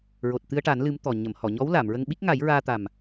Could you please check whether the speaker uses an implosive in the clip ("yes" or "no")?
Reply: yes